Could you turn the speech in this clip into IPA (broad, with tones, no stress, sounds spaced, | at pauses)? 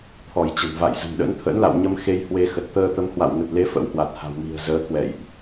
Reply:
t̪ʰ ɔ˧˩ j t͡ɕ ə̤˨˩ n v a̰˧˨ j z ə̤˨˩ m ɗ ə̰˧˥ n t̪ʰ ə̰˧˥ n l a̰˧˨ w ɲ ə˧ m x e˧ j h w e˧ x ə˨˩ t̚ t̪ əː˧ t̪ ə˨˦ m h w a̰˧˨ w ŋ ə˨˩ t̚ l e˨˦ f ə̰˧˥ w h w a˨˩ t̚ h a̤˨˩ w m i̤˨˩ ə̯ z əː˨˦ k w ɛ̰˧˨ j ʔ